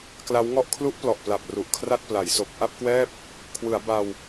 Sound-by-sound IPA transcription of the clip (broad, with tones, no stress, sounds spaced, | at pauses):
k l a˦˥ w ŋ ɔ˥˩ ʔ kʰ l u˦˥ ʔ p l ɔ˨˩ ʔ p l a˨˩ p̚ r u˨˩ ʔ kʰ r a˥˩ t̚ p l a˩˦ j s o˨˩ k̚ ʔ a˥˩ p̚ k w ɛː˥˩ p̚ | kʰ w ɯ˩˦ a̯ b a˧ w